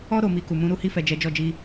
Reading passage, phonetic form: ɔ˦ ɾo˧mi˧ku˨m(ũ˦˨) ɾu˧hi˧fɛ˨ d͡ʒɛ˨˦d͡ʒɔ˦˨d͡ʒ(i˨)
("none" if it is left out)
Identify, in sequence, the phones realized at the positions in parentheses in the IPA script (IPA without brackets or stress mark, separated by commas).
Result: ũ˨˦, i˧